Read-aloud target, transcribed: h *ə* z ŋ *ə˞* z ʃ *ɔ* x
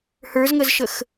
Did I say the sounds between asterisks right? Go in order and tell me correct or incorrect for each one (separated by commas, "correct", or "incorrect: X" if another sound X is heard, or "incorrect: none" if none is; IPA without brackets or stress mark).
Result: incorrect: ə˞, incorrect: ə, incorrect: ə